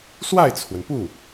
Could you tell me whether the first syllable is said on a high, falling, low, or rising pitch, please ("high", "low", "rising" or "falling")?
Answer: falling